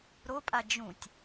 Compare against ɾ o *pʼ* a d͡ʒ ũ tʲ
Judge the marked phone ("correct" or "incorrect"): correct